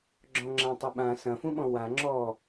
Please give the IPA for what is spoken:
ɡ͡ǁ ɔ̃ ŋ͡ǁ ã tˤ ʏ ɓ ã s ɐ̃ f ũ ɓ ɔ̃ w a ŋ͡ǁ ɔ

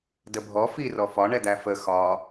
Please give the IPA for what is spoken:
d ə bʱ ɔ f i r ɔ f ɒ ɳ ɛ d̪ æ f ə x ɒ

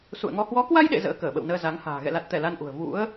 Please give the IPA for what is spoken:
s ṵ˧˨ ə̯ ŋ ɔ˧ h w ɔ˨˦ k w a˧ j ɗ ḛ˧˨ z ə̰ː˧˥ k əː˧˩ ɓ ə̰˧˨ w n əː˧ z a˨˦ ŋ h a̤ː˨˩ ɣ ɛ̰˧˨ l a˨˩ t̚ t̪ ɛ˧˩ l a˧ n ʔ ṳ˨˩ ə̯ v ṵ˧˥ ə̯

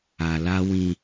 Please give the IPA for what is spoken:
a˨ l a˦ w ĩ˦

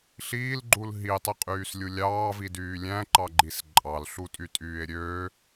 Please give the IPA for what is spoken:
ɬ iː l ɡ͡ǃ u l ɦ i tˤ i qʼ yː s lʲ u lʲ ɑː v i d yː lʲ æ̃ ǃ ɑ ɡ͡ǃ i s ǃʼ ɑ l ɬ u tʼ y tʼ yː e̯ ɾʲ øː

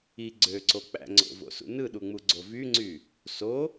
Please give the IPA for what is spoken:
i ɡ͡ǀ ø ǀ o k͡p æ̰ ŋ͡ǀ o̰ v o̰ s ṵ n ɯ ɗ u ŋ͡m u ɡ͡ǀ o v y ŋ͡ǀ y | s o

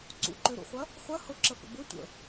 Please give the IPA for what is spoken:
ǀ ṵ ǃ ø ɾ ṵ χʷ ɐ | χʷ ɐ h ʊ ǁ ə f ə̰ b ʊ tʷ ə̰

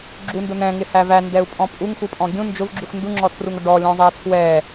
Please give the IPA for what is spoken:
ɡ͡ǁ u n d ʊ n̪ ɛ̃ ŋ ɪ h æ v æ n d ɛ u̯ pʼ ɔ̃ pʼ u ŋ x u pʼ ɔ̃ ɡʲ ũ n d͡ʒ ʊ v ɡ͡ǁ u x n d u ŋ͡ǁ ɔ tʰ r u ŋ ʊ ɖ ɔ lʲ ɔ̃ zˤ æ tʰ w ɛ

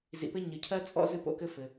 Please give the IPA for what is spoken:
z ḭ˩ p ɘ˥ ɲ ɨ˩ cʰ ɜ˥ t͡sʼ ɔ̰˥ z ɨ˥ p o̰˥ k ɘ˥ f ɘ˩

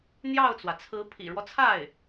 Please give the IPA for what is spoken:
n̪ j ɑ˥˩ ʊ̯ t͡s w ä˩ t͡sʰ ɹ̩˧˥ pʰ ḭ˨˩ ɻ w ɔ˦ t͡sʰ a˥˩ ɪ̯

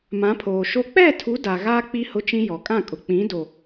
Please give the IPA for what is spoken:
m ã˨˦ pʰ oː˨ ʃ o˦ k͡p ɛ˦˨ tʰ u˨˦ d a˨ ɣ aː˦ k͡p i˦ h ʊ˦ t͡ʃ ĩ˦ j ɔ˨ kʼ ã˦˨ kʼ ʊ˨ k͡p ĩ˨˦ d o˨

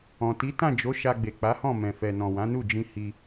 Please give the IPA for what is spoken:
ɔ̃˨ t i˨˦ t ã˦˨ d͡ʒ o˨˦ ʃ a˧ ɡ͡b e˨ k͡p a˨˦ h ɔ̃˦˨ m ɛ̃˨ f ɛ˨ n ɔ̃˨ w ã˨˦ n u˦˨ d͡ʒ ĩ˧ h i˧

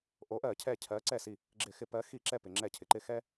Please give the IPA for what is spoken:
ʔ o˨˦ ʔ ɜ˧˩˧ cʰ ɛ˧˩ cʰ ɜ˨˦ ǀ ɛ˧˩ s i˧˩ | ɡ͡ǁ ɪ˧˩˧ x ɪ˧˩˧ p ɜ˨˦ x i˧˩˧ ǁ ɛ˧˩ p ɪ˩ ŋ͡ǁ ɛ˧˩˧ cʰ ɪ˩ ǃ ɪ˧˩ x ɛ˦

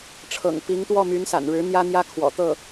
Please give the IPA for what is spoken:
ʈ͡ʂʰ ɤ̰˨˩ ŋ p i˧˥ ŋ t̪ w ɔ˥˩ m y˧˥ n s a̰˨˩ n ɻ ɻ̩˧˥ n̪ j ä˥ n̪ j ä˥ kʰ w ɔ̰˨˩ t̪ ɤ˥˩

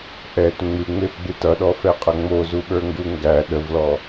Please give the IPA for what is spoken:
ʔ ɛ t ŋ͡m ɨ ŋ͡m e f ɡ͡b ɨ t ʌ ɗ ɔ f ɛ qʼ ʌ ŋ͡m o z u ɓ ə˞ ŋ ɡ u ŋ ɡ æ ɗ ə v l ɔ

